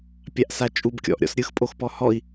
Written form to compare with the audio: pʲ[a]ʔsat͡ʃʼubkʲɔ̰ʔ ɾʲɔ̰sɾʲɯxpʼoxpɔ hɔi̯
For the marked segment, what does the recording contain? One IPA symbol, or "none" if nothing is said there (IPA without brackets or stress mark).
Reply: a